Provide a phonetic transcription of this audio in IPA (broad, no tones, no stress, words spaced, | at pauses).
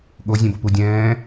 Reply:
ɠozʲẽbʌpu dʲɛ̃ː